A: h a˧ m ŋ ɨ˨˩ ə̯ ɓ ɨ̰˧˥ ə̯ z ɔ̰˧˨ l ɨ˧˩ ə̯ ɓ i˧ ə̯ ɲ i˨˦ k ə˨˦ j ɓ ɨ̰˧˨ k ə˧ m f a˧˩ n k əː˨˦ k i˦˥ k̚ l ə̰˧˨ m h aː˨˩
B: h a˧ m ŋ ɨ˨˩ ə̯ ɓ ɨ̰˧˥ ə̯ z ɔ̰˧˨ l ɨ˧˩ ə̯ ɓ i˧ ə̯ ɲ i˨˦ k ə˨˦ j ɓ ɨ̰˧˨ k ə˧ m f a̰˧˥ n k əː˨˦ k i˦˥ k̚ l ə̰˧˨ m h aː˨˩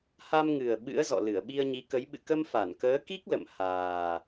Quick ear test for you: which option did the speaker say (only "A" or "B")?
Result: A